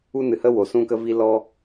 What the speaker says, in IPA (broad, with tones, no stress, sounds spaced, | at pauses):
u˦ n ɨ˨ h ə˦ w o˨ s ũ˦ k ə˦ v i˦ l ɔ˧